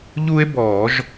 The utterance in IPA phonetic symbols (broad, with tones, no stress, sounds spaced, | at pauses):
ʎ u˦ e̯ b ɔː˧˩˧ ʒ